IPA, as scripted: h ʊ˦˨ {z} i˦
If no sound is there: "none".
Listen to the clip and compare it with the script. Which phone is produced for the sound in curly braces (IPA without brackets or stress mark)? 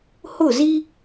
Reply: z